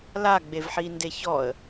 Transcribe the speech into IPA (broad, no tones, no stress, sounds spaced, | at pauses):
l a ɡ͡b e v ħ i n d e ç ɔ ə̯